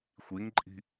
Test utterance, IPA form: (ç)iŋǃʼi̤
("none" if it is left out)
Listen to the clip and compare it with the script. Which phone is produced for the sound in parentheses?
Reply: xʷ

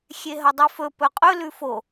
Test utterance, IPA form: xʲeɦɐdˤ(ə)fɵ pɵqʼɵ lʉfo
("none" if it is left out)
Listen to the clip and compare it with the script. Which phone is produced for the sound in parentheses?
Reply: ʉ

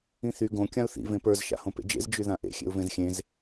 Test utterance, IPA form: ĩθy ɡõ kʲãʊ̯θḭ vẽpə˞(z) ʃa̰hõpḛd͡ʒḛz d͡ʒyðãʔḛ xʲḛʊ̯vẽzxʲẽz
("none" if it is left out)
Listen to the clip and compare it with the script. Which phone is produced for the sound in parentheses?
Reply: z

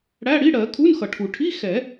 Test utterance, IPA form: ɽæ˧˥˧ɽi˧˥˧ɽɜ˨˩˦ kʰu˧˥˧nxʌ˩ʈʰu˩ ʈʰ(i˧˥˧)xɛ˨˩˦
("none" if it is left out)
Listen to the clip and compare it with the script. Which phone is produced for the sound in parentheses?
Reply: i˧˥˧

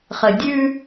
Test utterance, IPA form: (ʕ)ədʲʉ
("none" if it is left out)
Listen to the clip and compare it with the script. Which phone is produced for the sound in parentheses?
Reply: χ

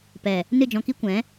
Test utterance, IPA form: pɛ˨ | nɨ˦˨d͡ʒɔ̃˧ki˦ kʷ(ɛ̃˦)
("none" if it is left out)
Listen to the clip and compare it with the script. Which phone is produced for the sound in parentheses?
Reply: ɛ̃˨˦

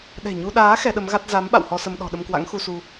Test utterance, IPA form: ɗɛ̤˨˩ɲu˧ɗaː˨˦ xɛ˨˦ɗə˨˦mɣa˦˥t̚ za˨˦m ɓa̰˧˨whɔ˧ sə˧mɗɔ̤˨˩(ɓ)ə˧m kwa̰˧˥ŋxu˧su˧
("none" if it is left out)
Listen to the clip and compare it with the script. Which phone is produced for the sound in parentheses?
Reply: ɗ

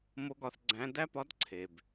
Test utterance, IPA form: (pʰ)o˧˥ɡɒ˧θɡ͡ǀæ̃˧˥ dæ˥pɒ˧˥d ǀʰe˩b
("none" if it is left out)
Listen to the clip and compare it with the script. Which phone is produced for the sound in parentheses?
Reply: m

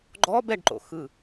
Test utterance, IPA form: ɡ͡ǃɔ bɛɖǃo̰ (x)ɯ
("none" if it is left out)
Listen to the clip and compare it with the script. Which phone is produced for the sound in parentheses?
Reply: x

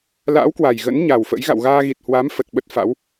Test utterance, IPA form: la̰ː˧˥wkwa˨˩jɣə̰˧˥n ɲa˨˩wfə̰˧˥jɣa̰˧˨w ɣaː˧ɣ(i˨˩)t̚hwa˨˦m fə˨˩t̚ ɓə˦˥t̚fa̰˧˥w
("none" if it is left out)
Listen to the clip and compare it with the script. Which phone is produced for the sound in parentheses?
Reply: i˨˩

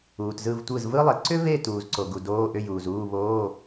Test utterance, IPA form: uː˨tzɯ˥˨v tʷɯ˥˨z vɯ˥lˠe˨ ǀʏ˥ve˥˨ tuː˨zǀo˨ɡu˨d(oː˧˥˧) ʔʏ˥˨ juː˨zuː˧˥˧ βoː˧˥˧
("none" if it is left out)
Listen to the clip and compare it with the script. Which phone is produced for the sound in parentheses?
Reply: oː˧˥˧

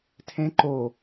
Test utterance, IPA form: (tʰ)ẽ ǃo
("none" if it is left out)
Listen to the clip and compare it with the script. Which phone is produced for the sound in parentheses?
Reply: tʰ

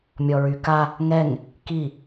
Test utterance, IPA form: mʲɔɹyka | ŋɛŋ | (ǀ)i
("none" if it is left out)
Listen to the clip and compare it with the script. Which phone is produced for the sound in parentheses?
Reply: k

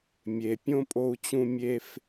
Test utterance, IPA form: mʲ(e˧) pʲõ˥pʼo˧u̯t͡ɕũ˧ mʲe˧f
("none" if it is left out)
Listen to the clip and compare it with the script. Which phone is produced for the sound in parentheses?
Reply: e˩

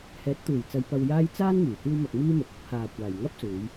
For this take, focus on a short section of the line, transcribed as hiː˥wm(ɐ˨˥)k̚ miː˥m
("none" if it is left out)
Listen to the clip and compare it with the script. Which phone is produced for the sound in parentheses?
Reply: ɐ˧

